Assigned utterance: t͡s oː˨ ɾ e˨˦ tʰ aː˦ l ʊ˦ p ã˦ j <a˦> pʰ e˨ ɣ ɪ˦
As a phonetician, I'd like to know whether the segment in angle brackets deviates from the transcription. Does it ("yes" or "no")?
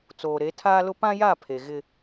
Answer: yes